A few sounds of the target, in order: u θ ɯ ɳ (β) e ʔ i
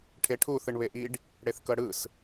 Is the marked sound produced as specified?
yes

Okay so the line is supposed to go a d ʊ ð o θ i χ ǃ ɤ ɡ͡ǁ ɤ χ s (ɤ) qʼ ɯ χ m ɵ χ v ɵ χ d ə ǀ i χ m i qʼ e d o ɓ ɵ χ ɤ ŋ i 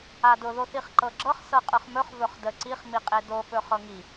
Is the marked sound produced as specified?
yes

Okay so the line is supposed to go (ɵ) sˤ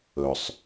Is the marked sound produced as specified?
yes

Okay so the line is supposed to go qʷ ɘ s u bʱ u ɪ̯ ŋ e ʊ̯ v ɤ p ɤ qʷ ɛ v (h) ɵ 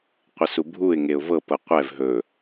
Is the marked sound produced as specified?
no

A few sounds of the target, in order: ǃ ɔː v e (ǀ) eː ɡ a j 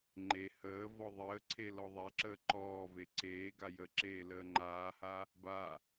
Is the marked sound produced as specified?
yes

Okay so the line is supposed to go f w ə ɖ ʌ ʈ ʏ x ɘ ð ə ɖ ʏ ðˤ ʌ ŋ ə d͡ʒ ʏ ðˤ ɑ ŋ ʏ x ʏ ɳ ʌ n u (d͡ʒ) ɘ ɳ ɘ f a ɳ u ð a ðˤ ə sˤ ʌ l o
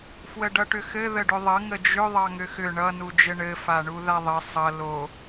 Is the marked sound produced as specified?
yes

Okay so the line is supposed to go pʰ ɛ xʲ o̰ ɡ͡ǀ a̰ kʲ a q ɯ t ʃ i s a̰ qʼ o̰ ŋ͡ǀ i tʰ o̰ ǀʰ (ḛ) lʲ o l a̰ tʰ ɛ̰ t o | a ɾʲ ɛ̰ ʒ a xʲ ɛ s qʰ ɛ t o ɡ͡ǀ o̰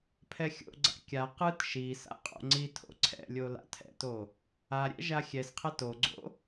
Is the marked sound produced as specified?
no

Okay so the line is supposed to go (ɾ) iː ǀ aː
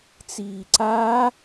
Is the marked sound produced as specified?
no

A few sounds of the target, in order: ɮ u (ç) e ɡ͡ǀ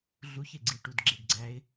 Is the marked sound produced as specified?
yes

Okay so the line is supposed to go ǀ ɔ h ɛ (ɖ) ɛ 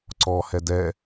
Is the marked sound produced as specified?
no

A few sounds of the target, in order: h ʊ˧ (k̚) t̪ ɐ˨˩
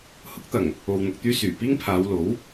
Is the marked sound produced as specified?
yes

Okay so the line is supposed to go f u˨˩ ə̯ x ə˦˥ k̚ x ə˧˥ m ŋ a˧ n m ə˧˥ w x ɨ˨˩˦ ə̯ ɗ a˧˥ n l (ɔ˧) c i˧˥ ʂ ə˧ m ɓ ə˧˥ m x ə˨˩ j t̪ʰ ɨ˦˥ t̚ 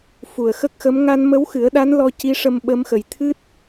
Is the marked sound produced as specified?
yes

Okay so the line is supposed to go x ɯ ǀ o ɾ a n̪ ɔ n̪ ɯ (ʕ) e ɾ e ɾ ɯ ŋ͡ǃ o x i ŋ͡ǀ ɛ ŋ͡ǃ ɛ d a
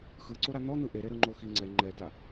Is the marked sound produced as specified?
no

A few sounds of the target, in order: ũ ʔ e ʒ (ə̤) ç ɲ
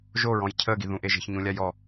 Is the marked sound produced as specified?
yes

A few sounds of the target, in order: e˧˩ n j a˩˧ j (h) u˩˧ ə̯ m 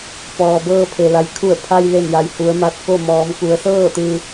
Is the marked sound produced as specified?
yes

